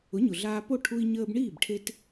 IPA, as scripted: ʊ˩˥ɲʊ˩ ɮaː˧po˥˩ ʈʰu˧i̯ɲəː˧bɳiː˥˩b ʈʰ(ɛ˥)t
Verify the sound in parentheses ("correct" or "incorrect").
incorrect